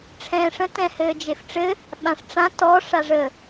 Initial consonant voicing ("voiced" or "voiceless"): voiceless